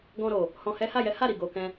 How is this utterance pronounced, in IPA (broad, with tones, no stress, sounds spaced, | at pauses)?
ɡ ɔ̃˧ ɾ o˨ | h ɔ̃˧ h ɛ˦ h a˦˨ j ɛ˨˦ h a˦˨ ɾ i˨ ɡ o˧ k ɛ̃˦